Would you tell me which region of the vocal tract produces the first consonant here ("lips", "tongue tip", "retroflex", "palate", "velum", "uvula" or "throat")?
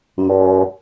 velum